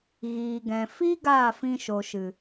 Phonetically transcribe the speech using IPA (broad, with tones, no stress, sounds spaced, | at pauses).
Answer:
ɣ iː˨ ɡ ɛ̃˨ f i˦ ɡ aː˦˨ f ĩ˧ ʃ o˨ ʃ ɨ˨